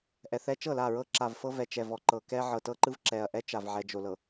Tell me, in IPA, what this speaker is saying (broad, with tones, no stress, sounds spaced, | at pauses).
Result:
ʔ ɛ˨ θ ɛ˦ t͡ʃ ɤ˦˨ l a˦˨ ɹ ɤ˦ ǁ a˨ v f ɤ˦ v ɛ˨ t͡ʃ ɛ˨ v ɔ˨ ǃ ɤ˨ k ɛ˦ ʕ ɤ˨ t ɤ˦ ǃ ɯ˦ v ǁ ɛ˨ ɐ̯ ʔ ɛ˦ t͡ʃ a˨ v ʕ ɛ˨ d͡ʒ o˨ l ɤ˨